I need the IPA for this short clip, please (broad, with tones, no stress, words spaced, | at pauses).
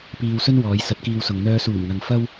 piː˧wsɵ˥n wɔː˨˧jsɐ˨˥t̚kiː˧wsʊ˨ŋ n̪œː˧suː˨˩mŋɐ˨ŋ fɐ˥w